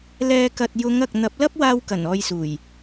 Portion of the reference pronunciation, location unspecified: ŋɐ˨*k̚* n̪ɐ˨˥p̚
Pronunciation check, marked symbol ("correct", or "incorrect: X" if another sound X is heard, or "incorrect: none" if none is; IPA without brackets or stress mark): correct